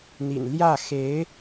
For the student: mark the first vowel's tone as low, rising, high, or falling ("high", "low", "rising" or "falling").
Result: low